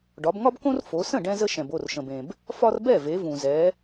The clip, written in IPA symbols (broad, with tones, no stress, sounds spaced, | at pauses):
ɖ ɒ˩˧ b ŋ ɒ˦ b k õ˦ r f o˩˧ s ə̃˥˩ ɖ ɛ̃˦ z ə˦ ʃ ɛ̃˩ b o˥˩ r ʃ ə̃˩ b ẽ˩ b | f ɒ˦ r b ɛ˥˩ v e˩˧ v ũ˩ z ɛ˩˧